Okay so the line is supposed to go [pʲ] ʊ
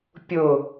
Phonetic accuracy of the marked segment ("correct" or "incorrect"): correct